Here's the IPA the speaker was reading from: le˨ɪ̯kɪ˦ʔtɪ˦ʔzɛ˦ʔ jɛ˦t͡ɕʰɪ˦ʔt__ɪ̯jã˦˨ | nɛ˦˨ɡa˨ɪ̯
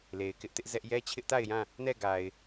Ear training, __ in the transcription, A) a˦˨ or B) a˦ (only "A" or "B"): A